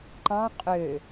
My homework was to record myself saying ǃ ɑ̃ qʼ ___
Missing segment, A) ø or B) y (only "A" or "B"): A